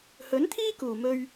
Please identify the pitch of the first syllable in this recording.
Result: rising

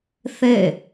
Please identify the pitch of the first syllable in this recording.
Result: falling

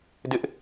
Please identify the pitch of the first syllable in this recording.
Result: high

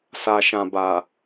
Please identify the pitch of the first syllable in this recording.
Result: low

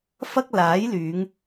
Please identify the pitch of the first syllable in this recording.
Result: high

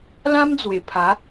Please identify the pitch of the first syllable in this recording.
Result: high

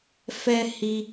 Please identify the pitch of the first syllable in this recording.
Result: high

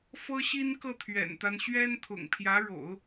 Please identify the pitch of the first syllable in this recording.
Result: high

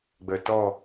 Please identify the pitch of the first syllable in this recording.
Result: low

